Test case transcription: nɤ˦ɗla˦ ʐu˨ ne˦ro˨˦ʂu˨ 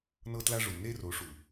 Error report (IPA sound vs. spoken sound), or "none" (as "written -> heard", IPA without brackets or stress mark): ɗ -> t